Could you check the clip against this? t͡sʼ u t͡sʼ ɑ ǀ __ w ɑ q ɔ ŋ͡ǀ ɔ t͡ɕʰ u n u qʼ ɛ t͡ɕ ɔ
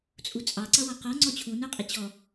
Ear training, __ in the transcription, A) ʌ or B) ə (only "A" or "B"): A